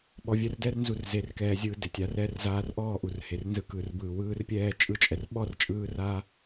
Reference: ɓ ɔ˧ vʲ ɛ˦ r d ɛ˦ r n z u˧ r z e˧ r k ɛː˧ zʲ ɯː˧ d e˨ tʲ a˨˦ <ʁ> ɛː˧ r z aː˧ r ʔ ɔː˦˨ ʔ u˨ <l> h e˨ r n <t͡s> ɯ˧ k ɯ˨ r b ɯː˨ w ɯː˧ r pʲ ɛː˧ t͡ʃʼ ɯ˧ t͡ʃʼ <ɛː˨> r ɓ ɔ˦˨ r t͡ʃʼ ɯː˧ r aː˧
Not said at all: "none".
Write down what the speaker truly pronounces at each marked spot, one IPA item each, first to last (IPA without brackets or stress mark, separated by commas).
r, r, z, ɛ˨